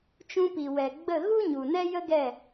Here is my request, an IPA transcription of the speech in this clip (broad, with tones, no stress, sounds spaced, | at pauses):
t͡ʃ ũ˧ p i˨ w ɛ˨ ɡ͡b ə˦˨ ɣ u˦ ɲ u˨ n ɛ˦ j ə˦ ɡ ɛ˦˨